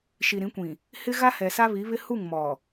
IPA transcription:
ʃ i˨ ɾ ĩ˨˦ kʷ ĩ˨ | h ɪ˦ ɣ a˦ h ɛ˨ s a˦ β i˨˦ β ɪ˦ h u˦˨ ŋ m ɔ˨

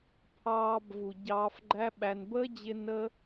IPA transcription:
pʰ ɑː˧ b v u˨ ɟ ɑː˧ f ɡ͡ǃ æ˦ ɓ æ˧ n b əː˦ d͡ʑ ɪ˧ n ə˦

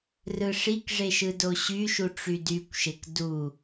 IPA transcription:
r ɯ ʂ i k ʐ e ʃ ɯ d o ɕ y ʃ u ʈ͡ʂ y d y kʷ ʃ e k d u

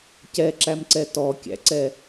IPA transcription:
c ɛ ǁ æ m ǀ ɛ t ɔ kʲ æ̰ ǀ ɛ

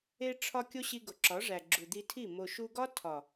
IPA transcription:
e˧ ʈ͡ʂʰ ɒ˧ kʲ o˦ ɕ i˧ ɡ o˨ ǁ ɒ˨˦ ʐ æ˨ ɡ͡ǁ u˨ d̪ i˧ tʰ i˦˨ m o˨ ʃ u˧ ɡ ɒ˦ tʰ ɒ˨

